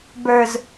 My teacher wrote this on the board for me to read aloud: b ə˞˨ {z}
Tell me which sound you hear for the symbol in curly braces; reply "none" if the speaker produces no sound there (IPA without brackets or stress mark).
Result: z